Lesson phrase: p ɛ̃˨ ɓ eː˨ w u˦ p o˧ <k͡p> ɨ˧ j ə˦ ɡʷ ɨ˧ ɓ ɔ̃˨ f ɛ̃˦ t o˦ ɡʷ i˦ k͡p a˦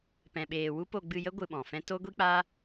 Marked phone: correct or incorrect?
incorrect